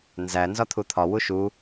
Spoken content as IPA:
n z æ n z ɒ t̪ʰ u t̪ʰ ɒ w u ʃ u

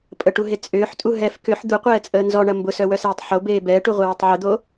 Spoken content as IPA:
pʼ ə ʈ u ɦ e t͡sʼ ʏː ħ tʼ u ɦ ɛ f k ʏ ħ d̪ u qʷ ɛː t͡sʼ əː n z ɔ ɳ ɐ m b ʊ s œ w œ s eː tˤ ħ o b eː b ɛː ʈ u ʁʷ e w e tˤ ʕ ʏ d̪ o

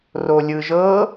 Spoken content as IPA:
r o lʲ ɯ ʒ ɤ

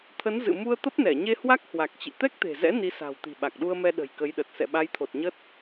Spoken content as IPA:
t̪ʰ ə˨˦ n z ɨ̰˧˨ m u˧ ə̯ t̪ ə˦˥ p̚ n ɛ˧˩ ɲ e˧ h w a˦˥ k̚ h w a˨˩ k̚ t͡ɕ ḭ˧˨ t̪ ɛ˦˥ k̚ t̪ e̤˨˩ z ɛ̰˧˥ n i˨˦ s a̤˨˩ w t̪ i̤˨˩ ɓ a˨˩ k̚ ɗ u˧ ə̯ m ɛ˧ ɗ ə̤˨˩ j k ə˨˦ j ɗ ə˨˩ t̚ s ɛ̰˧˨ ɓ a˨˦ j t̪ʰ o˨˩ t̚ ɲ ə˦˥ t̚

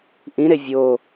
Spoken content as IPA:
ʔ ĩ ɾ e vʲ o

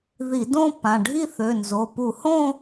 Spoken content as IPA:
ð i˧˩˧ d õ˥˧ p ã˩˧˩ ɖʱ i˥˧ θ ø˩˧˩ n z o˩˧˩ p u˧˩˧ h õ˥˧

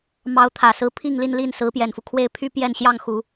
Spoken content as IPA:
m ɑ˧˥ ʊ̯ t̪ʰ ä˨˩ s ɹ̩˧˥ pʰ i˥˧ ŋ l i˥˧ n l i˥˩ n s ɹ̩˧˥ p j ɛ˨˩ n f u˦ kʰ w e˥˧ ɪ̯ pʰ y˥˧ p j ɛ˥˧ n ɕ j ɑ˥˩ ŋ x u˨˩˦

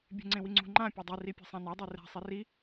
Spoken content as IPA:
bʲ e̤ ŋ͡ǀ ẽ w i ŋ͡ǀ ṳ ŋ͡ǃ ã pʲ o dˤ i r i pʲ ɛ̤ sˤ ã n a dˤ i r ɛ̤ sˤ i r i

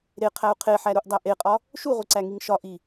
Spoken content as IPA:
ɾ e qʰ æ u̯ qʰ e ħ æ ɾ u ʔ dˤ æ ʔ e qʼ ɒ | ʃ u ʁʷ e ǀ æ ŋ i ŋ ʃ ɒ ʔ i

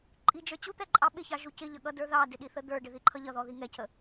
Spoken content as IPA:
ǃʼ i d͡ʒ ə˞ t͡ɕ u t̪ ɛ ǃʼ ɑ ɓ ɪ ç ɑ ʒ u c ɪ ʎ ʌ ɠ ʌ d ə˞ ð ɑ d ɪ ɗ i θ ə d̪ ə˞ ɖ ɪ ð i ǃʰ ʌ ʎ ʌ ð ɔ ð i ŋ ɛ cʰ ə

